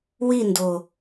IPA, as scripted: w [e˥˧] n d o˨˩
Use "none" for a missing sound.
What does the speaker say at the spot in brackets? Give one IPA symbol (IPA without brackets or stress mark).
i˥˧